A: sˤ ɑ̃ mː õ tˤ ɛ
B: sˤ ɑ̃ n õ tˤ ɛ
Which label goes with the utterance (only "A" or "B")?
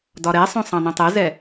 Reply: B